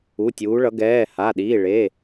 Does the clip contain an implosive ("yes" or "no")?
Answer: yes